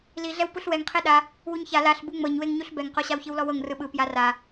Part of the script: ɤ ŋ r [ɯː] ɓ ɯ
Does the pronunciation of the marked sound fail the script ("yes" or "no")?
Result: yes